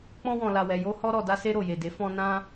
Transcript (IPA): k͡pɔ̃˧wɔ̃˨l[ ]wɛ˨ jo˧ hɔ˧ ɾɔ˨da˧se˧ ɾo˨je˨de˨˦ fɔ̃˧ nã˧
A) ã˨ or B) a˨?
B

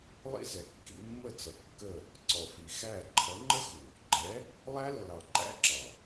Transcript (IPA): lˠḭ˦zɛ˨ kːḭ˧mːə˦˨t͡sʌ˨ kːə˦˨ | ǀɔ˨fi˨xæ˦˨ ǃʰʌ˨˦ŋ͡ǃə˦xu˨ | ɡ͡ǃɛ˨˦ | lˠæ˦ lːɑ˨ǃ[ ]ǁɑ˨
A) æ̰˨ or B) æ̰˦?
B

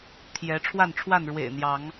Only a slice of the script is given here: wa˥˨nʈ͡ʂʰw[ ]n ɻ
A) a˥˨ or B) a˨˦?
A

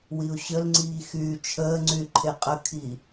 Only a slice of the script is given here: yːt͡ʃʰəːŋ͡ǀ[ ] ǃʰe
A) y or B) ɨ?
A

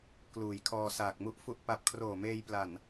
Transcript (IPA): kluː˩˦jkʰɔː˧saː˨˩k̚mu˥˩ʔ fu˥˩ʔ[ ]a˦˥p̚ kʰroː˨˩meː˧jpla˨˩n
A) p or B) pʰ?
A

